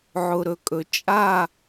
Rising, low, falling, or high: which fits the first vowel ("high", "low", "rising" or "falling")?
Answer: low